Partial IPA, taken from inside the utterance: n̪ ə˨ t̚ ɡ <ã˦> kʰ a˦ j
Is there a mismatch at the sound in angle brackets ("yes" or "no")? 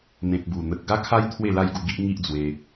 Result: yes